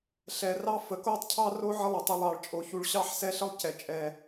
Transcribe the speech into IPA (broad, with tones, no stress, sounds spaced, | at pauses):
ɬ ɛ˧ r ɑ˥ f ə˧ k o˥ tˤ cʰ ɑ˥ r o˥ ʕ ə˥ lˠ ə˧ tˤ u˧ lˠ ɑ˧ ɭ t͡ʃʼ o˧ ç u˧ ɭ ɕ ɑ˥ ħ s ɛ˥ ɬ ə˥ lˠ c ɛ˧ t͡ʃʼ ɛ˧